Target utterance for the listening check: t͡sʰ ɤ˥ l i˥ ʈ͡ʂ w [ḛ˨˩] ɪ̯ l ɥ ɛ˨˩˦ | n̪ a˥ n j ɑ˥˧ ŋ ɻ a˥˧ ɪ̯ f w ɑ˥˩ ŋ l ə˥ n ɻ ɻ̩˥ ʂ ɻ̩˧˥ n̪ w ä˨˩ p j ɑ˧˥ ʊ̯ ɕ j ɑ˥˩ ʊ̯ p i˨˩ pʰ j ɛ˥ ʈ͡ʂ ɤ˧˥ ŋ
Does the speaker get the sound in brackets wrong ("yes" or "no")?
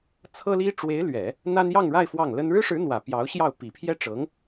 yes